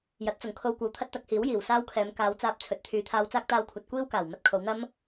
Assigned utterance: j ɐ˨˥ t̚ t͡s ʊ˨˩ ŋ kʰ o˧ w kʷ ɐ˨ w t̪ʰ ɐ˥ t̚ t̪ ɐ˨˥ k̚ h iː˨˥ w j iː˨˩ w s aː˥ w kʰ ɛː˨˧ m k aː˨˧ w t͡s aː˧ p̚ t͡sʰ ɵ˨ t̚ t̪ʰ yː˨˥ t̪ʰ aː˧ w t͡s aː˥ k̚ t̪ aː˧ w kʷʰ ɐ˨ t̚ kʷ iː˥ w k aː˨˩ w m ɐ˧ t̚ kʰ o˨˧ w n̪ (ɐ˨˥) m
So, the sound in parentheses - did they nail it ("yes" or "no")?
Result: no